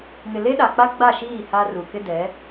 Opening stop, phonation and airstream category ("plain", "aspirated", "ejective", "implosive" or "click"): implosive